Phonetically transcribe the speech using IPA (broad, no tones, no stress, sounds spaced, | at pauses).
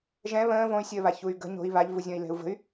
ʒ ɛ̃ β ə̃ː v õ y̯ sʲ əː β a ç u y̯ ɡ ə̤ ɲ o̤ i̯ β a ʎ v u zʲ ɔ̃ i̯ l ɛ̤ u̯ v ə̤ y̯